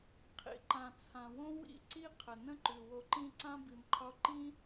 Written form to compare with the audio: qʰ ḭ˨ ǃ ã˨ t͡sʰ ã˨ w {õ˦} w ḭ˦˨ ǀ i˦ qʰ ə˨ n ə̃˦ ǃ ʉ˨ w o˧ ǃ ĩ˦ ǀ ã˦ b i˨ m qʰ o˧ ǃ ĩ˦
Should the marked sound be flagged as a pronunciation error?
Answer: no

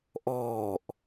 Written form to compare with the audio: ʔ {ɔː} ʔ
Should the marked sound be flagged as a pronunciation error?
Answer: no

